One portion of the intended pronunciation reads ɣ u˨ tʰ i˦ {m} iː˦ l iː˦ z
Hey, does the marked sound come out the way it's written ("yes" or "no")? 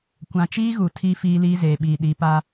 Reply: no